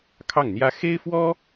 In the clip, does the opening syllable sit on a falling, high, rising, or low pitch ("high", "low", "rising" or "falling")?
falling